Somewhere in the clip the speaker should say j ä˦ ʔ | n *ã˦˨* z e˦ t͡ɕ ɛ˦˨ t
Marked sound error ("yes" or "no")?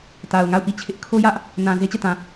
yes